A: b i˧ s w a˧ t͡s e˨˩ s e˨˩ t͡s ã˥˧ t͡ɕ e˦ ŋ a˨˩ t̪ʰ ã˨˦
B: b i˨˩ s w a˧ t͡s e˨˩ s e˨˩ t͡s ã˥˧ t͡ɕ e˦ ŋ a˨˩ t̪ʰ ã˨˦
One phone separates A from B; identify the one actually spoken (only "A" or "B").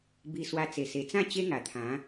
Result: A